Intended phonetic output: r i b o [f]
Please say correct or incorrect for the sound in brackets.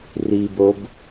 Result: incorrect: b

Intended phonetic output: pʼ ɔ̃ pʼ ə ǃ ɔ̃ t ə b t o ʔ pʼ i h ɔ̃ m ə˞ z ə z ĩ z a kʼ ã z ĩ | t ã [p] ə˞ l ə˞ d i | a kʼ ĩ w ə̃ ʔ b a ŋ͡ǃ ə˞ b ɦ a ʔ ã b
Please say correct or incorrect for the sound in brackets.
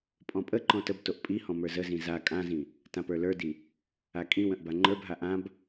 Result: correct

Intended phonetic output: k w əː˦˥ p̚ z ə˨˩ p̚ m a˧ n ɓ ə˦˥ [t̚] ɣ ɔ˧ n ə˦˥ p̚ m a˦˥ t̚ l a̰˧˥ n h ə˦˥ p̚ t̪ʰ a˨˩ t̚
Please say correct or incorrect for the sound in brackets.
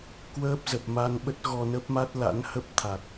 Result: correct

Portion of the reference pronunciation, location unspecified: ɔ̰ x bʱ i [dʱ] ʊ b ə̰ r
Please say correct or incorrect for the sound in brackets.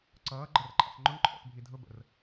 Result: correct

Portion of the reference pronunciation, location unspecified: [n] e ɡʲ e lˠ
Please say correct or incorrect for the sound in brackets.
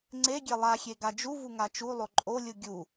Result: incorrect: ŋ͡ǀ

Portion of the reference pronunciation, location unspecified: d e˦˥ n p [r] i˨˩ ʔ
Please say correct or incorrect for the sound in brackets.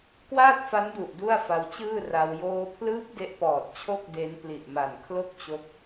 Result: incorrect: l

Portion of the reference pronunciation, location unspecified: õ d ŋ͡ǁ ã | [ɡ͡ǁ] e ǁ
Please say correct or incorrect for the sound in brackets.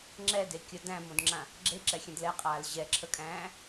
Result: correct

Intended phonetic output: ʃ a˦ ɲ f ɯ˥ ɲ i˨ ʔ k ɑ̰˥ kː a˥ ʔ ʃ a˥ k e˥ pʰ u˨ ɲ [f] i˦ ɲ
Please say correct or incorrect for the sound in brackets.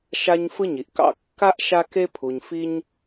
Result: correct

